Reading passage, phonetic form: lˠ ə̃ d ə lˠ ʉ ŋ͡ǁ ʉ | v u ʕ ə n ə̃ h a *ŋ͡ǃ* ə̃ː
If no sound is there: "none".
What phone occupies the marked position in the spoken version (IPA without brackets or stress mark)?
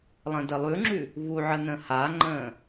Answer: ŋ͡ǃ